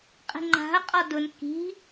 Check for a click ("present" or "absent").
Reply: present